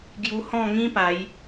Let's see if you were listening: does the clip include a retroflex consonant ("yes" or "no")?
no